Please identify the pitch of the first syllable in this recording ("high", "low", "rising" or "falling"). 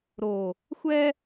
low